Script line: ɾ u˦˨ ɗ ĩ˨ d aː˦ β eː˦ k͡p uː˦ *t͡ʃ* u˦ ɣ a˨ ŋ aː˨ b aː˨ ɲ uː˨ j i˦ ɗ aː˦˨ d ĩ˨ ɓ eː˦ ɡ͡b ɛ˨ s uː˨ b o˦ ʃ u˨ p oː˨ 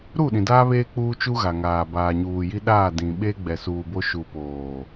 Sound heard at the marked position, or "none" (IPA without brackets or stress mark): t͡ʃ